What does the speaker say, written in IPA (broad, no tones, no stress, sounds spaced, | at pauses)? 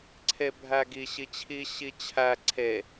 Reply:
ǀʰ e bʱ æ ɡ i ɕ i t͡ɕʰ i ɕ i t͡ɕʰ æ ǀʰ e